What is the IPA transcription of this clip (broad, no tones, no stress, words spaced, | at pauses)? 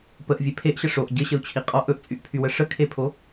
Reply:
pəʔvʲe pʰeʔɕə ʂoʔ ɟɘɕəu̯t͡ɕʰi qʼɔʔ ɵʔt͡sʼyʔpʰywə ʂəkʰepʰo